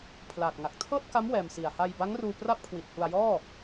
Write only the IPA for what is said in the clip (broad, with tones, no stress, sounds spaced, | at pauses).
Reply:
pʰ l aː˨˩ t̚ ŋ a˨˩ k̚ tʰ ɤː˥˩ t̚ k a˦˥ m w ɛː˧ m s i˨˩ a̯ h a˧ j b a˦˥ ŋ r uː˧ p r a˥˩ p̚ kʰ w i˨˩ t̚ h u˧ a̯ j ɔː˥˩